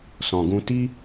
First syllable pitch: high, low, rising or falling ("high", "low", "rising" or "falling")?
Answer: low